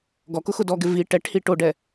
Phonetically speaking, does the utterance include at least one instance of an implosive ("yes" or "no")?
no